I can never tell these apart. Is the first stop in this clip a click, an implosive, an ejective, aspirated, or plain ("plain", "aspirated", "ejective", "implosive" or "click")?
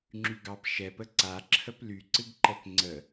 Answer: click